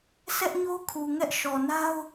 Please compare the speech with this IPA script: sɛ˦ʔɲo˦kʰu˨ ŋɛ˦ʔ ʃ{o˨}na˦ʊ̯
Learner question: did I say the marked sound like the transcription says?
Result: no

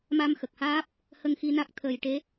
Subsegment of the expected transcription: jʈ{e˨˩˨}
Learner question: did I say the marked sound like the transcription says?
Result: no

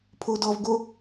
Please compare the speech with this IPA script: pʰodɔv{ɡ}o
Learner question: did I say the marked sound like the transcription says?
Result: yes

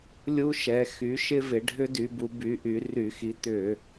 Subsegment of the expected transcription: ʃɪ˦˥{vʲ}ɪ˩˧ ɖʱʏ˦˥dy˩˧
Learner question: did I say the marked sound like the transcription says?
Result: no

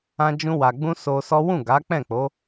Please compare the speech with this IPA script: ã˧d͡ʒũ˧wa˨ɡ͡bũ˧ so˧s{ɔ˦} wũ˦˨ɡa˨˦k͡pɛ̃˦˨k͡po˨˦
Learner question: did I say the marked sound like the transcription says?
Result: yes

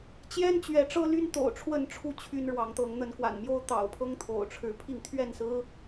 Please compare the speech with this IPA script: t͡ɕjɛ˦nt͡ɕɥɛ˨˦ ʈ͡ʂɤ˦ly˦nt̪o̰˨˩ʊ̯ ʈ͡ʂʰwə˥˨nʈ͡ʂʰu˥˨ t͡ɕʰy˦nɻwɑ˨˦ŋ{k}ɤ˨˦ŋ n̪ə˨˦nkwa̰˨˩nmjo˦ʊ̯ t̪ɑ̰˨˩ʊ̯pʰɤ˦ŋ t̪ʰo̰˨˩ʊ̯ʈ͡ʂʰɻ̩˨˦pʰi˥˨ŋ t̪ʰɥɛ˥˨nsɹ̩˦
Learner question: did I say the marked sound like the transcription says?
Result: no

